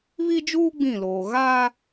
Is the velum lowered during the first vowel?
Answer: no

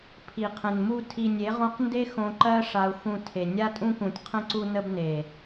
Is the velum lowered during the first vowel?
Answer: no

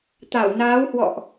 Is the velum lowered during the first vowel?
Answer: no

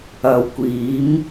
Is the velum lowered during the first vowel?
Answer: no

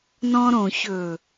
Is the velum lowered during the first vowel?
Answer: yes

